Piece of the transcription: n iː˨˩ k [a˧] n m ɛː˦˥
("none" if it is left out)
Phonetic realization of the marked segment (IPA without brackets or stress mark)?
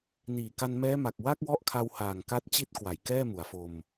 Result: a˧